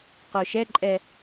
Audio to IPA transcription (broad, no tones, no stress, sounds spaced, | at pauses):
q o ʃ ɛ ǃʼ ɛ